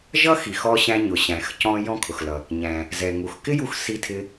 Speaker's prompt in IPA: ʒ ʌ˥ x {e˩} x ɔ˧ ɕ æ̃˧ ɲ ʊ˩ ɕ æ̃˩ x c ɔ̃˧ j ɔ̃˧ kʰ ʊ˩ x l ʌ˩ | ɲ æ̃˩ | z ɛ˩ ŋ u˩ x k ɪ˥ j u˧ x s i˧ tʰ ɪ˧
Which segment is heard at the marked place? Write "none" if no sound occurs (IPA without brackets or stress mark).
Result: i˩